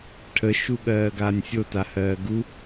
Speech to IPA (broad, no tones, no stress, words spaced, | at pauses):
ʈʰəʃuɠɜːɡaːnʲ sʲotahɜː ɡu